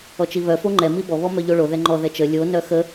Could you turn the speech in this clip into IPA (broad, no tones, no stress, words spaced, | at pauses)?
ɔt͡ʃiβœ foŋ͡ǃɛ mibɔ βɔmœʎoɭo ðɛŋ͡ǃɔ ðɛt͡ʃə lʲo nœxə